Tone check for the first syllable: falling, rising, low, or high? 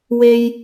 high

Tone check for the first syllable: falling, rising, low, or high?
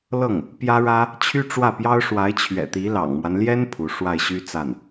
falling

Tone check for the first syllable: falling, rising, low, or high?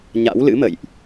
rising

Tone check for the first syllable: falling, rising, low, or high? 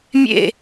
falling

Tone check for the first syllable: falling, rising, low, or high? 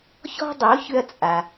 high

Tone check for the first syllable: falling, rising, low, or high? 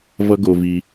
high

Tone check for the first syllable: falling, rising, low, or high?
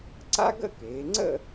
high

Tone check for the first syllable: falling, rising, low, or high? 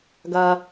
low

